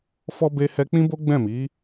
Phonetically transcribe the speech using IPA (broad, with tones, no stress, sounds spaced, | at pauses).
f ɔ˧ b e˧ h ɛ˧ k͡p ĩ˦ b o˦ ɡ͡b ɛ̃˦˨ m i˨˦